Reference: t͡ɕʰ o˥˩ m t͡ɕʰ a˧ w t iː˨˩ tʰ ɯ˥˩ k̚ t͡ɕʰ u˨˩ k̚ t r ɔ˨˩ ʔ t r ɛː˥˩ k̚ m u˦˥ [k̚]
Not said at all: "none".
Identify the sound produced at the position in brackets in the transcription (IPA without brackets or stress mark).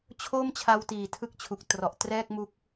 k̚